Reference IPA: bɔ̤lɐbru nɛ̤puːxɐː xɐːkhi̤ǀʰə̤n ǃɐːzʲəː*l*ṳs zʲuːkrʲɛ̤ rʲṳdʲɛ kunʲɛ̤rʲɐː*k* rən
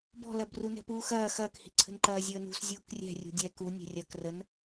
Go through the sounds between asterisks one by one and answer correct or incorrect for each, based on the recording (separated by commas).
incorrect, correct